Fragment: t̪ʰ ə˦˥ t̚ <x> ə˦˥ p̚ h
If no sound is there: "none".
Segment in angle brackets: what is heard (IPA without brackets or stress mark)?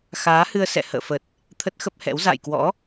x